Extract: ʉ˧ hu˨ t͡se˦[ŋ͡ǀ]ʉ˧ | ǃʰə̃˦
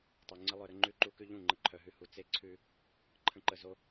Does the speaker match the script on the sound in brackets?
no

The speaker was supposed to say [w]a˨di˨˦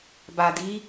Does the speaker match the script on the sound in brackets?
no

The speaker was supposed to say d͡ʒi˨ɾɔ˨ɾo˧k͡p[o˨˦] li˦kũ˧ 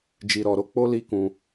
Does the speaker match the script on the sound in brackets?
no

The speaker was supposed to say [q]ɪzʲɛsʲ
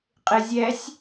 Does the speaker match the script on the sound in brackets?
no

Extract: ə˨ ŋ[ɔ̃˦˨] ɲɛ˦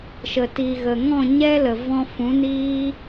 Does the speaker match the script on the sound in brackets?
yes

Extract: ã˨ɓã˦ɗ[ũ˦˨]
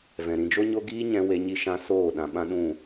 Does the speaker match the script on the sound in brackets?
yes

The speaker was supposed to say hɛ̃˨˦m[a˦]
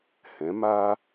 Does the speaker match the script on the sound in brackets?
no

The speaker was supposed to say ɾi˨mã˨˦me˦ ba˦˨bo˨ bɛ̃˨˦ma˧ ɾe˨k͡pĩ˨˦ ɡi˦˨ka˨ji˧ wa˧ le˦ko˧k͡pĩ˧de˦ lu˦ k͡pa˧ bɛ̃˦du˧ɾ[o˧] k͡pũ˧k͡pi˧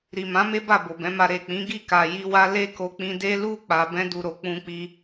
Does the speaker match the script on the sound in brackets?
no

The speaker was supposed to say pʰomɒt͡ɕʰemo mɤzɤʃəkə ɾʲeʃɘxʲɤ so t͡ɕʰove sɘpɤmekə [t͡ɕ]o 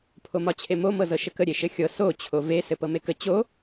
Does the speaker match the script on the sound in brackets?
yes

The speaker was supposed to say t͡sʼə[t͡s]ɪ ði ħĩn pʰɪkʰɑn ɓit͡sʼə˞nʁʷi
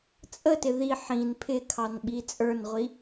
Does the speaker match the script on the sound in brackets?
no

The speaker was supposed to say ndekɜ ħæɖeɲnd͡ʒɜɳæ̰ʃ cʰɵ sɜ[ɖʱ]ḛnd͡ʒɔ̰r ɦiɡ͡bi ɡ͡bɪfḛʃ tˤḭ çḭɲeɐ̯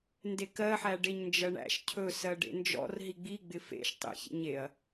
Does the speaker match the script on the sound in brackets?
no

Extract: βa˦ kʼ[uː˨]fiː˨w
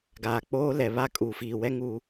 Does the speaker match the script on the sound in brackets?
no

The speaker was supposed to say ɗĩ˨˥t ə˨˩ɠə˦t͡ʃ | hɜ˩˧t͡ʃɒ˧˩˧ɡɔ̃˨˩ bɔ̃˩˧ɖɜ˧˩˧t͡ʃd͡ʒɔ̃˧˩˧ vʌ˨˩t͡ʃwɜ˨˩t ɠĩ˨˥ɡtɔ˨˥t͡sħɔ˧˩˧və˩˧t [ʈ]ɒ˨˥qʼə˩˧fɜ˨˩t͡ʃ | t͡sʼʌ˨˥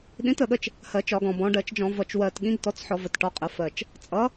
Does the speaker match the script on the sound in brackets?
yes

